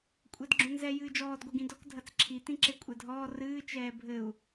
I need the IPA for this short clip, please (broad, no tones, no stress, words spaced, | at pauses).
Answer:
kʷʼɛdɡ͡ǁõnzɛ jɨːd͡ʒɔːd ɡʷeɡĩdɔk dʱɐt͡sǁʰi tĩǁekʷʼɛdʱɔː rɨː t͡ʃɛːbʱɘu̯